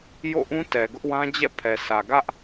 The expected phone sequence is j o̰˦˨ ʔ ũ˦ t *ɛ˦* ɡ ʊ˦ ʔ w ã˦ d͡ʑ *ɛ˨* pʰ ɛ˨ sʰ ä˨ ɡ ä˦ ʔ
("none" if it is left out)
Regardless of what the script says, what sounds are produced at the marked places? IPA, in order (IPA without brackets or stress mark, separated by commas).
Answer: ɛ˨, ɛ̰˦˨